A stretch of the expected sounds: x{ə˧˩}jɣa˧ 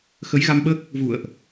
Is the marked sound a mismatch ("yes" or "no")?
yes